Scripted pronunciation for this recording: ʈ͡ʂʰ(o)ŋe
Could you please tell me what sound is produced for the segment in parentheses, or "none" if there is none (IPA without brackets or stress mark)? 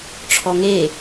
ɔ